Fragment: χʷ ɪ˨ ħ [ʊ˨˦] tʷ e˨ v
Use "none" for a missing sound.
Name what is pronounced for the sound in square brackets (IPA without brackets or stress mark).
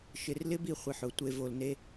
ʊ˨˦